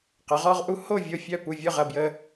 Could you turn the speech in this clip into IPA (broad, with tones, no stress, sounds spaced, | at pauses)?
q ə˩˥ ʁ ɔ˦ ʁ ʔ u˦ h o˥˩ vʲ o˧˩ fʲ œ˧˩ p u˧˩ vʲ ʊ˥˩ ʁ ɐ˧˩ b j ə˦